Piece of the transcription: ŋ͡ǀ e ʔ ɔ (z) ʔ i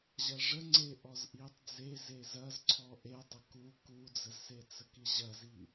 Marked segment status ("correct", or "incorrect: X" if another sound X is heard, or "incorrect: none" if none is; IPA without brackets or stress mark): correct